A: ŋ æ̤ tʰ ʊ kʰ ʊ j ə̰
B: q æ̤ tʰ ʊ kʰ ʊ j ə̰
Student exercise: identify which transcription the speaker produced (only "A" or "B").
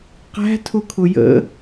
B